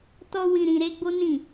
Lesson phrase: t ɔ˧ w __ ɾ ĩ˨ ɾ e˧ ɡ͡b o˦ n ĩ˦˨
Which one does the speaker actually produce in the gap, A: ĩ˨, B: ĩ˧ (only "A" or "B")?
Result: A